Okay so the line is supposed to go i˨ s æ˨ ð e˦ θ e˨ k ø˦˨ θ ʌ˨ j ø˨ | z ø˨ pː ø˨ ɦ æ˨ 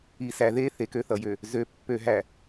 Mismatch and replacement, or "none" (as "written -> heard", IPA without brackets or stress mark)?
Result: none